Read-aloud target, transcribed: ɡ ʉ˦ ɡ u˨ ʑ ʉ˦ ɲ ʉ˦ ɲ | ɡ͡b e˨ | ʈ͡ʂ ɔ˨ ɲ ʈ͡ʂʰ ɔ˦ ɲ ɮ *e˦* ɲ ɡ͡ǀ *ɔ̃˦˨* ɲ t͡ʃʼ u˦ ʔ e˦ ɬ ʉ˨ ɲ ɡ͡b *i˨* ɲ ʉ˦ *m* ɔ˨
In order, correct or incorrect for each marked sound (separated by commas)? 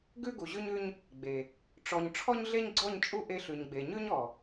correct, incorrect, incorrect, incorrect